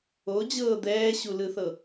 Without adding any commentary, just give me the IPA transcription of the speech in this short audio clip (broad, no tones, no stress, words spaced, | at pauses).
od͡ʑɤː d̪ɛːɕulɯθɤ